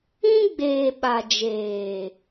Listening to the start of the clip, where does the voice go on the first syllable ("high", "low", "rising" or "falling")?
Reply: high